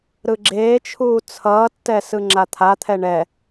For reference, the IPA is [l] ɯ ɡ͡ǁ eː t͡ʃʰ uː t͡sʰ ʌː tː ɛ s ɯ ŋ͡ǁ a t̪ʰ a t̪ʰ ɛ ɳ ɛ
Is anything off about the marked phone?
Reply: yes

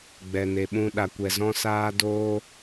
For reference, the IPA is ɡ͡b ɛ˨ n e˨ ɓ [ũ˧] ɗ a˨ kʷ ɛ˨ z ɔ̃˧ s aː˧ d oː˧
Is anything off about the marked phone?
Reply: no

